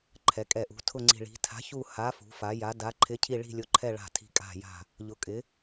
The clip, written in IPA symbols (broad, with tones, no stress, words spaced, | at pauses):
ǃʰɛ˩˧kʼɛ˨˩ʔṳ˩˧ tʰʊ˨˩ ŋ͡ǀi̤˨˩ ɭi̤˩˧ tʰa̤˩˧çu˨˩ ha˩˧ fṳ˩˧fa˩˧ja˩˧ da˩˧ ǃʰɪ˩˧ cʰi˨˩ɭi̤˨˩lʲʊ˩˧ǃʰɛ˨˩ ɭa̤˨˩tʰi̤˨˩kʼa̤˨˩ja̤˨˩ | ʎʊ˩˧kʼɪ˩˧